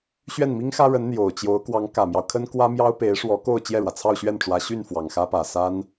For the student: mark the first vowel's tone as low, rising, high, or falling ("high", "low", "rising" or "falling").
falling